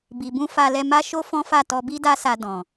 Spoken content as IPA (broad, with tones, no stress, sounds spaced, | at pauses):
b i˨ b ũ˧ f a˧ l ɛ˧ m a˦ ʃ o˦ f ɔ̃˦ f a˦˨ t ɔ˧ b i˦ d a˦ s a˧ d ɔ̃˨